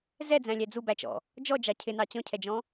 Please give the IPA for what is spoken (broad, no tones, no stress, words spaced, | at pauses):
zɛd͡zæ̃lʲæ d͡zubæt͡ʃɔ̰ | d͡ʒɔd͡ʒɑ cʰɪnɑ t͡ɕɔ̃cʰɛd͡ʒɔ̃